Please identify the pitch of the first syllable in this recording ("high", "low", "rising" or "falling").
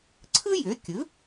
high